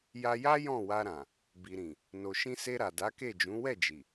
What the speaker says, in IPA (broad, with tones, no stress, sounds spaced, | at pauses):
j a˧ j a˦ j ɔ̃˦˨ w a˧ ɾ ã˨ | b i˨ ɾ ĩ˨ | n o˨ ʃ ĩ˧ s e˧ ɾ a˨ d a˨˦ k e˦˨ d͡ʒ ũ˨˦ w ɛ˦˨ d͡ʒ i˨